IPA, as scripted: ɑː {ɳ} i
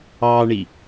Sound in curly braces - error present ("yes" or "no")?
no